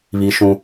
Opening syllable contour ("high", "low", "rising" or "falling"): high